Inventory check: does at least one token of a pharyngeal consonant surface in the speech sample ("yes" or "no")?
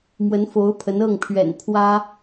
no